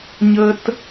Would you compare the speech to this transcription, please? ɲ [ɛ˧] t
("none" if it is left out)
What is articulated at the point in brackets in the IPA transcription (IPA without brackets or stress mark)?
ə˧